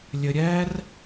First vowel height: mid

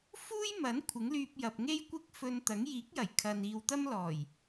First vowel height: high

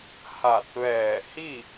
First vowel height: low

